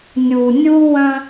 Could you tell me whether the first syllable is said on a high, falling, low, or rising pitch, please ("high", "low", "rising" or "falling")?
low